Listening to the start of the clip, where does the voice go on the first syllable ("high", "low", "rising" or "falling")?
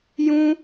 high